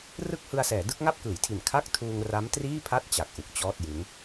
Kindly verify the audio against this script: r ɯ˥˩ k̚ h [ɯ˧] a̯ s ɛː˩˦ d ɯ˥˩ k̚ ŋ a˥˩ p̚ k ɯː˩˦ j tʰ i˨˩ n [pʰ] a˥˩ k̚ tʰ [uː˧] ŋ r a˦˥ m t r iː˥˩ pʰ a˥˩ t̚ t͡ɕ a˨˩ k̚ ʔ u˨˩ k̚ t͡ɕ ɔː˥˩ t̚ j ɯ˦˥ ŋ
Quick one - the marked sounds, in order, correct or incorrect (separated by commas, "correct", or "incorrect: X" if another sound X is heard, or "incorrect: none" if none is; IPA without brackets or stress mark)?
correct, incorrect: kʰ, correct